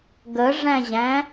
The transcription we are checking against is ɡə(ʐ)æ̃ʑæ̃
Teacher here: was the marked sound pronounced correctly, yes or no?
yes